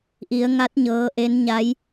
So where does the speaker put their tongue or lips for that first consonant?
throat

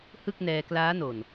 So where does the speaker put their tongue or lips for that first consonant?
throat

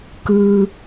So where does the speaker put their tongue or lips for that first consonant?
velum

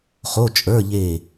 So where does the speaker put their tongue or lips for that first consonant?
uvula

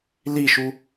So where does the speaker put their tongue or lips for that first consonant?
tongue tip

